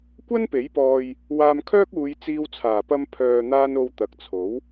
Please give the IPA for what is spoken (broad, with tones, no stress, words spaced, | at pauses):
kʷɐ˥npe˨˥jpɔː˧j | waː˧mkʰœː˥k̚uː˨˧j t͡siː˧wt͡sʰaː˨˩pɐ˧m pʰœː˨n̪aː˧n o˧wt̪ɐ˨˥k̚t͡sʰo˨˥w